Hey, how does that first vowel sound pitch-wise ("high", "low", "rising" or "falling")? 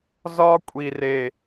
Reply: high